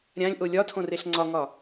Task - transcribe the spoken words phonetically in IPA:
ɾʲ ã lʲ ʔ o lʲ ɒ tʰ õ r e ɬ ŋ͡ǀ ɒ ŋ ɒ

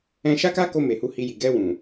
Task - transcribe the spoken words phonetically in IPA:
ɛ̃˧ ʃ a˦ k a˦ k o˧ m e˨ h u˧ h i˧ j i˨ ɡ ɛ˧ w ũ˨

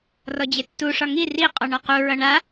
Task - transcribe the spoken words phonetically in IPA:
r ɔ d͡ʑ e tː u ʂ ɒ ŋ i r i qʼ ɔ ɳ ɒ q u ɹ ʌ ɳ a

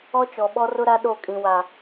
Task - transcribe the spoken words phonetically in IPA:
ɔ˦ t͡ʃ ɔ˨ ɓ ɔ˦ r ʊ˦ ɾ a˦ ɗ o˦˨ kʼ ĩ˨ w a˨

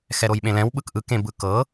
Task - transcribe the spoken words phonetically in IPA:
x ɛ ɾ o j ɓ ẽ l ɛ̃ w ɓ ɯ k ʔ ɯ k ẽ b ɯ k ɤ

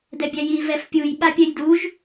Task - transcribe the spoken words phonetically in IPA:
d ɛ bʲ æ j i v ɛ f pʲ u j ɓ a pʲ ɛ j d u ʒ

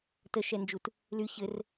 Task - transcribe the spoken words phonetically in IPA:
t ə ʃ ɛ n d͡ʒ u t | l y ç ɘ r

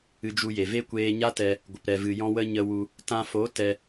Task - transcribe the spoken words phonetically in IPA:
ɨ˧ d͡ʒ u˧ j e˨ v e˦ kʷ eː˧ ɲ a˦ t ɛ˧ | ɡʷ ə˨ p ɾ ɛ˨ v ɨ˨ j ɔ̃˧ w ə˧ ɲ ə˧ w u˧ | t ã˧ f o˨˦ t ɛ˧

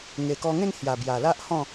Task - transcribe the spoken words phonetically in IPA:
ŋ e˨˩ k ɔ˧ ŋ ẽ˥˧ n h j a˨˩ b j a˨˩ l a˦ ʔ h ɔ̃˥˧

